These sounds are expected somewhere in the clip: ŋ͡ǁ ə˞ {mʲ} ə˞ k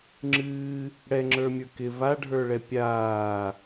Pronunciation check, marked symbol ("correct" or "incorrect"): correct